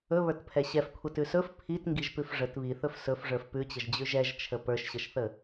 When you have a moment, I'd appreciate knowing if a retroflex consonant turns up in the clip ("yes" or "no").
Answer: yes